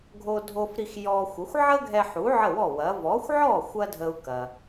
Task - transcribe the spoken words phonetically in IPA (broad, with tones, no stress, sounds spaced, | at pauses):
ɡʱ o˧ dʱ o˧ f ɾ i˧ x j ɔ˧ xʷ ə˩˥ xʷ ʕ ə˥ ɡʱ ɛ˧ ħ u˩˥ ʕ ə˥˩ w ɔ˥˩ w ɐ˩˥ v ɔ˩˥ xʷ ʕ ɔ˥˩ xʷ ɐ˥ dʱ ə˧ u̯ k ɐ˩